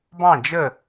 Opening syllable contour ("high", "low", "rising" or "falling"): falling